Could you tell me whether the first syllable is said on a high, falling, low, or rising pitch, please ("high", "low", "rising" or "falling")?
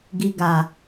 low